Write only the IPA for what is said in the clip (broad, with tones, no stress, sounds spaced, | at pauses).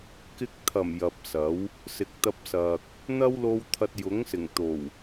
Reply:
k ɪ˧ k̚ t̪ʰ ɐ˨˩ m j ɐ˨ p̚ s ɐ˨˥ w | s ɪ˨ k̚ t̪ ɐ˧ p̚ s ɐ˨ k̚ | n̪ ɐ˥ w l o˧ w t̪ʰ ɐ˧ t̚ j ʊ˨˥ ŋ s ɪ˨˩ ŋ t̪ o˨˩ w